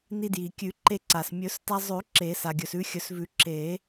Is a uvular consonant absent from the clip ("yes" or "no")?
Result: yes